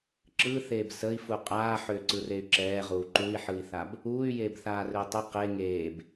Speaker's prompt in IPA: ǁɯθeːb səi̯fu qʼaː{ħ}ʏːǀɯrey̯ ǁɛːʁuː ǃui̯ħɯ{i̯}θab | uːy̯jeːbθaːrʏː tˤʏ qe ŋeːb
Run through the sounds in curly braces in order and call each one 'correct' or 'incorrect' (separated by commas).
correct, correct